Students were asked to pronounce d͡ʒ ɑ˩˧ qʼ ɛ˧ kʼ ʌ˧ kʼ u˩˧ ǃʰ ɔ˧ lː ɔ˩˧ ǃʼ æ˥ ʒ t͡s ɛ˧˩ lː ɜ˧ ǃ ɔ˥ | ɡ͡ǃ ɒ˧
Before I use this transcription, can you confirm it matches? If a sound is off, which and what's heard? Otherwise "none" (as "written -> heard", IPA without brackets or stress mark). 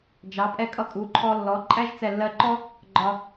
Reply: qʼ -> pʼ